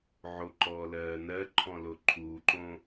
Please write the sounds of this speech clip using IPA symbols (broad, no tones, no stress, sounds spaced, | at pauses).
ʕ o ǃ ɔː l ɜː n ɜ ǃʰ ɔ̃ l o ǃʰ uː ǃ õ